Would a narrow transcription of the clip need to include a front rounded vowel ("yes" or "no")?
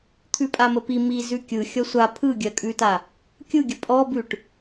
no